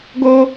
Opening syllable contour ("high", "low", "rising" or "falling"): high